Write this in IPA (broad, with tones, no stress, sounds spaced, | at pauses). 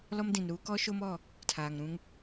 l ɔ˦ m d ĩ˨ n ɾ uː˦ k ɔ˦ ʃ o˦ m ɔ˦˨ | tʰ aː˨ ŋ ɾ ũ˦ ŋ